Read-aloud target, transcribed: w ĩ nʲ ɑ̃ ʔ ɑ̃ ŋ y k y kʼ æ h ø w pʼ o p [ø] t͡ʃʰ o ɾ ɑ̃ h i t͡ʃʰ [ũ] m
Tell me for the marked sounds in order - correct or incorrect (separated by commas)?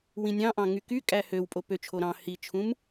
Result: correct, correct